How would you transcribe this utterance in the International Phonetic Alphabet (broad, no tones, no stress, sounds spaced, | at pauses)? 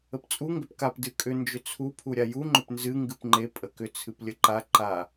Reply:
ə p t͡sʼ u ŋ ɡ ʏ p k a p d ɨ kʼ ʏ n d͡ʒ ʏ t͡sʰ u pʰ u ɾʲ a j u ŋ͡ǃ ʏ p n z ɨ ŋ ɡ ɨ p ŋ͡ǃ e pʼ ə k ʏ t͡sʰ ɨ p lʲ ə ǃ a ǃ a